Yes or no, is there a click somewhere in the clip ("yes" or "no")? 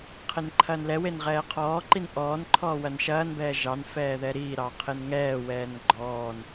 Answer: yes